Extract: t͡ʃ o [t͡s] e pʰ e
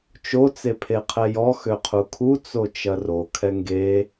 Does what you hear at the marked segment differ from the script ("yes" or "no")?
no